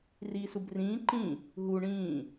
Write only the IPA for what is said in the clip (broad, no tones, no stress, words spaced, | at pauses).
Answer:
riːsubrĩː ǃĩ | ɦu ɳĩː